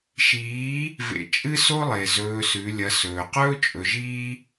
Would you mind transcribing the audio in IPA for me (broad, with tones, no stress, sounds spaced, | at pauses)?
ʃ iː˨˦ | v ḛ˧ t͡ʃʼ ɨ˦ s o˦ lˠ e˨ z ɵː˧ s ʉ˨˦ lʲ ɐ˧ s ɵː˨ q ɵː˦ t͡ʃʼ ɵ˨ ʒ iː˦